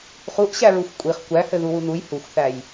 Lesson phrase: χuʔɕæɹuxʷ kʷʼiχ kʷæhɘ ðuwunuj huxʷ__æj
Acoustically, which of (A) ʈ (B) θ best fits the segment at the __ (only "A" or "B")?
B